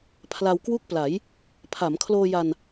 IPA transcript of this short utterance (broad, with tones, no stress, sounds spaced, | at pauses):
pʰ l a˧ w k w u˥˩ k̚ p l a˩˦ j | pʰ a˩˦ m kʰ l oː˧ j a˧ n